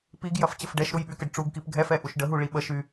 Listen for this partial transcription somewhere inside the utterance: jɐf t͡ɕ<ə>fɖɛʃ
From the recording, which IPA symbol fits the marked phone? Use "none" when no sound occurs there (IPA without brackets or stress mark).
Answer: ə